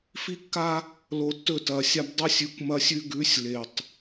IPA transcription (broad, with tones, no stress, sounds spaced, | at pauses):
f i˦ kː a˦ | l o˨ tː ɵ˦˨ t ɐ˨ sʲ a˦ b dˤ u˦ sʲ ʉ˨˦ kʷ m ɐ˦ sʲ ʉ˦ ɡ ʉ˨˦ sʲ l e˨ tˤ